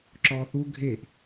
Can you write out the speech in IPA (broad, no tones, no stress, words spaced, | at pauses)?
ǁɔːθu ɡʱeʔ